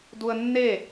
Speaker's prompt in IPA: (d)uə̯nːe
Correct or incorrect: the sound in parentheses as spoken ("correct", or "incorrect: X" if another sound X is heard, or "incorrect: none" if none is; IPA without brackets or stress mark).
correct